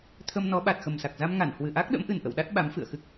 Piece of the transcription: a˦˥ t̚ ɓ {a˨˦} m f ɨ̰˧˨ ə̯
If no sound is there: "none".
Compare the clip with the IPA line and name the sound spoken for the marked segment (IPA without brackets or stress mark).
a˨˦